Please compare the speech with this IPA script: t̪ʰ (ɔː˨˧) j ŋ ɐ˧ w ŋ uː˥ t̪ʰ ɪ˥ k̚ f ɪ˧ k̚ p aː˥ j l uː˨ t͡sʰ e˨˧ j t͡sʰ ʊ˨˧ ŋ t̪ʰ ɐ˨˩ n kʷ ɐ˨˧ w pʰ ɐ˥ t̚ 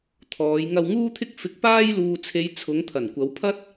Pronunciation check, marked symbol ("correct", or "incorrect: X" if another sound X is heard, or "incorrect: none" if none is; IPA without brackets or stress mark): correct